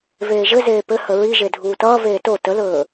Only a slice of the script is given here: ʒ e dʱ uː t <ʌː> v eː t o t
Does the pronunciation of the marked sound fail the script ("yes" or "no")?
no